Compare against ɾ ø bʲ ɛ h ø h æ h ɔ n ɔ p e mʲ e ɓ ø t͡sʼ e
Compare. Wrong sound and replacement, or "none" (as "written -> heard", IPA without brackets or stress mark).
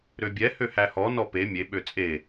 none